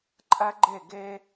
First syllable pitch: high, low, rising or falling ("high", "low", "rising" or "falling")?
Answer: high